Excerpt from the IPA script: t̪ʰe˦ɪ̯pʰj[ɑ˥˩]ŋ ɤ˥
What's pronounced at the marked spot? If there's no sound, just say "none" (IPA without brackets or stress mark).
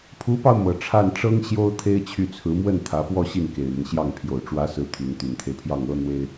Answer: ɑ˥˩